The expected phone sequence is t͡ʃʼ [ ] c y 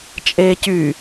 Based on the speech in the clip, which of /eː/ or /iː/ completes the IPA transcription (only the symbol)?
eː